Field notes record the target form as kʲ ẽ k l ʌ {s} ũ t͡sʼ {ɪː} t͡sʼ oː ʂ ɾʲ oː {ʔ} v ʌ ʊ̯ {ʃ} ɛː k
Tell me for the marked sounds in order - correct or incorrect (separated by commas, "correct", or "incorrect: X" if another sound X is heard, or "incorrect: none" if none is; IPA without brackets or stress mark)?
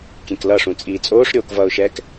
incorrect: ʂ, incorrect: iː, incorrect: k, correct